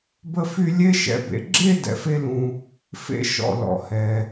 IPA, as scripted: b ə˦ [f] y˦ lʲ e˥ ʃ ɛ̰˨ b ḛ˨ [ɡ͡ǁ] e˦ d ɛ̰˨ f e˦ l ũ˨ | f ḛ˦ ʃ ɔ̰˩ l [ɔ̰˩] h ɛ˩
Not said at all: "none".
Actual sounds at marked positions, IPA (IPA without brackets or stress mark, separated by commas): f, ɡ͡ǁ, ɔ̰˩